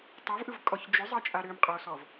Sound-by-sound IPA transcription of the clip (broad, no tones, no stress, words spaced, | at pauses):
tˤavʔɯvkʼɔç d͡ʒʏzˤʌt͡ʃʼa ɾʏmqʼosɔv